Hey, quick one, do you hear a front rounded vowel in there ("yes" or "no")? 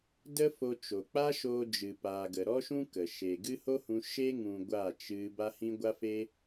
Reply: no